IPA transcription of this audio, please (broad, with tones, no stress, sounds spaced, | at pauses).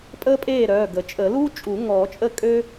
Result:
pʼ əː˥ pʼ eː˥˩ ɾ œː˩˧˩ ɡ ə˨˩˦ t͡ʃʼ ə˨˩˦ l uː˥ t͡ʃʼ u˨˩˦ ŋ ɔː˨˩˦ t͡ʃʼ ə˥˩ kʼ ø˥